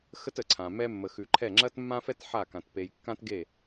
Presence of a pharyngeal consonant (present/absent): present